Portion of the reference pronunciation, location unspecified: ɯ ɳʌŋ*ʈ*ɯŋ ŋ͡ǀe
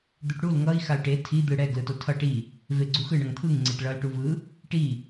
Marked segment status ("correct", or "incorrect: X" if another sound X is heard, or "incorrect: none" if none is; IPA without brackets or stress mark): incorrect: t̪ʰ